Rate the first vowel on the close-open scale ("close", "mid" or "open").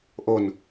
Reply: mid